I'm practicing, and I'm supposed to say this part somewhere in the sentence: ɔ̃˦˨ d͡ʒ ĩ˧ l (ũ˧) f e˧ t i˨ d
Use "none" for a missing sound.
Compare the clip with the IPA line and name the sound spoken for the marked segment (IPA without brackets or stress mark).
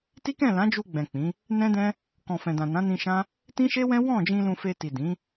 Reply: ũ˧